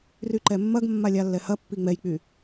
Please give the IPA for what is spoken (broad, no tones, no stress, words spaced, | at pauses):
ryǃɛmːɐɡmːa lʲalːɛhɐpːi ŋ͡mɛjk͡py